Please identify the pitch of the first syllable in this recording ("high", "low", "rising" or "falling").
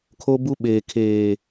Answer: high